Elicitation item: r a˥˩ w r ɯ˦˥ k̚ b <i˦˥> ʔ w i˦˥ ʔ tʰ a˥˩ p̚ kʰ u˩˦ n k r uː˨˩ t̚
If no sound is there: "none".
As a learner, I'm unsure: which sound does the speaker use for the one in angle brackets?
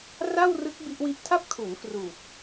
i˦˥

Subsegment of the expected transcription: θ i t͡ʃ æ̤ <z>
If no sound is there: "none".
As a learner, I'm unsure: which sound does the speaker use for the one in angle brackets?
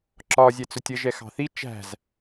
z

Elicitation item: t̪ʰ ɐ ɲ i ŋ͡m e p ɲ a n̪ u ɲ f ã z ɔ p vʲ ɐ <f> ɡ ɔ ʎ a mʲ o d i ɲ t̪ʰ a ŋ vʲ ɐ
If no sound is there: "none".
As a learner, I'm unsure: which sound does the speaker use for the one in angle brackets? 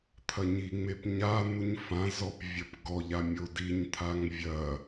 p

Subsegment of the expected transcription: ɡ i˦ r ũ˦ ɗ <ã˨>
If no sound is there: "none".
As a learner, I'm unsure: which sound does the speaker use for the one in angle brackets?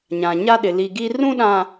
ã˨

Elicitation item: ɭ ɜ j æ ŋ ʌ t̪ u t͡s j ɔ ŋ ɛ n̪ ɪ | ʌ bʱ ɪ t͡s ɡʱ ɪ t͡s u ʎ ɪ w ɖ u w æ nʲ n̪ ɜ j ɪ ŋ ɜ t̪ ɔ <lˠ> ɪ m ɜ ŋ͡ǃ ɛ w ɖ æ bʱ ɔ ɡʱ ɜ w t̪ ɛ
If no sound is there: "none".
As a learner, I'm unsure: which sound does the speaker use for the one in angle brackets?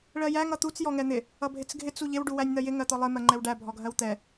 lˠ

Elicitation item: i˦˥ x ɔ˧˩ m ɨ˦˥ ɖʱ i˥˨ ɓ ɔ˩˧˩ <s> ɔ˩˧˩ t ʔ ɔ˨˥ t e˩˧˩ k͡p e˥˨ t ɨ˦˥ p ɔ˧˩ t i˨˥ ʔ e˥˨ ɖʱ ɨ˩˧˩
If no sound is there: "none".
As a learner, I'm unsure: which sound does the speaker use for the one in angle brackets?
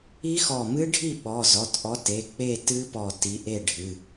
z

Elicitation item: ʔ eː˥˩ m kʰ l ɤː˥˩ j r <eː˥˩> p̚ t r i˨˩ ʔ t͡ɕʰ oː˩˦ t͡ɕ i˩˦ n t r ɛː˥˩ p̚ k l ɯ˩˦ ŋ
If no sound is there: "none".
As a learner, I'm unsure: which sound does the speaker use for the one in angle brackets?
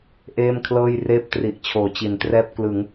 eː˥˩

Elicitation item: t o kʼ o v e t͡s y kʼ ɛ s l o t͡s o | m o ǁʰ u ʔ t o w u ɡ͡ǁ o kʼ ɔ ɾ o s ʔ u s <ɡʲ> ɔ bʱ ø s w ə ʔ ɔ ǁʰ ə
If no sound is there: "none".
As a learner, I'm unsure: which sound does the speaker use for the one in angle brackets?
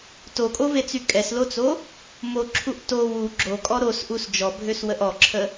d͡ʒ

